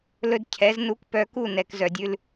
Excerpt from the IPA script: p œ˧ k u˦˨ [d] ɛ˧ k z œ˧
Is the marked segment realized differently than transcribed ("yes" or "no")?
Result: yes